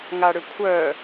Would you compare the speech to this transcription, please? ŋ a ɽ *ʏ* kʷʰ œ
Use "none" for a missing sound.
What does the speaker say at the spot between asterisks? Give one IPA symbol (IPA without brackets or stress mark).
ʏ